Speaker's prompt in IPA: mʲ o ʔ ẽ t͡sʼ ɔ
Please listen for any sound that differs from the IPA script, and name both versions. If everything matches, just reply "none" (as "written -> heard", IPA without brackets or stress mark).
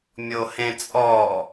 ʔ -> h